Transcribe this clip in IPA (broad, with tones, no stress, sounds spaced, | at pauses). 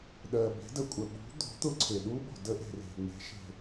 ɗ ɜ˨ b e̤˨˦ d ə˨ kʷʼ ə˨ ɓ ṳ˨˦ d̪ o̤˨˦ t̪ ʊ˦˥ ǀʰ e˨ ɗ u˦˥ ɓ o̤˨ d ə˦˥ ʔ e̤˨ r e̤˨ ŋ͡m e̤˨˦ ʃ e̤˨